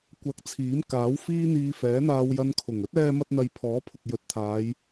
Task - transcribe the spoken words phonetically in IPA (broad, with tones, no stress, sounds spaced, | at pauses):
kʷ ɐ˧ k̚ t͡sʰ iː˨˥ m k aː˨˥ w f iː˥ n̪ iː˧ f ɛː˨˥ n̪ aː˧ w j ɐ˧ n kʰ ʊ˨˩ ŋ ɵ˥ t̚ ɛː˧ m ɐ˧ t̚ n̪ ɐ˧ j pʰ ɔː˨˥ pʰ ʊ˨ k̚ j ɵ˨ t̚ t̪ʰ aː˨˧ j